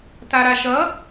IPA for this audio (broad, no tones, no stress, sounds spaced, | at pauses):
t a ɾ a ʃ ʌ